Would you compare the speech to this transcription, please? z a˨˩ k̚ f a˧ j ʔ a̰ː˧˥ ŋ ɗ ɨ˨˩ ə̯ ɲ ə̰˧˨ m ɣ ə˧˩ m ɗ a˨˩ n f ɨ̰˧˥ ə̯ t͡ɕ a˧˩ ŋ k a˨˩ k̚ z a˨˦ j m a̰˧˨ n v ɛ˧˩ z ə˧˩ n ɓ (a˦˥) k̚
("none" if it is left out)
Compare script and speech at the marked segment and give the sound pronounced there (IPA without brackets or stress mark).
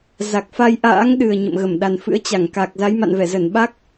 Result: a˦˥